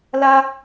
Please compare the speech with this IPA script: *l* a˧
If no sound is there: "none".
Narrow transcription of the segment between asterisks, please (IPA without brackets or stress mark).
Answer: l